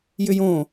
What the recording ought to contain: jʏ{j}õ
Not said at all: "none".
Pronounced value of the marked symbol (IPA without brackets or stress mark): j